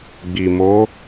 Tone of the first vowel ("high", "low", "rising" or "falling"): low